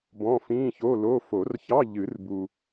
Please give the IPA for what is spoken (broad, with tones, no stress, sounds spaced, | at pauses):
b ɔ̃˧˥˧ f ĩː˧˥˧ ç o˧˥˧ l o˧˥˧ f o˨˩˦ r ç ɑ˧˥˧ ʎ ɨ˨˩˦ r b u˨